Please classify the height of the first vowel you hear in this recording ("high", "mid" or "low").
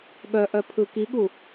mid